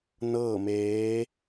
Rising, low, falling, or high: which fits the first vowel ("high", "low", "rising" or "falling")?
falling